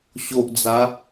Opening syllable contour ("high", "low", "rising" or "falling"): low